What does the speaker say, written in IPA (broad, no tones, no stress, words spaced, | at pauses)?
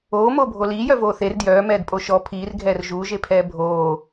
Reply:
oːmoːbʱo liːjœvoː θer djœːmɛːdpʼo ʃɔ pʰiːrɡʱɛːr ʒuːʒepʰɛː bʱoː